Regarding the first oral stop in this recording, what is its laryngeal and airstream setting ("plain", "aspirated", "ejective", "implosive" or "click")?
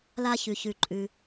click